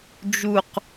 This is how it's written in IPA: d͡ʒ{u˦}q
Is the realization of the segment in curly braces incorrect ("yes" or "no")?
yes